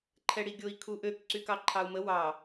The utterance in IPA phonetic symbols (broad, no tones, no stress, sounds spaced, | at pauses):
ǃʰ ɛ ɽ i ɡʲ o i̯ kʰ u ʔ ø k ǀ y k ɑ ǃʰ ɑ u̯ m ə w ɑ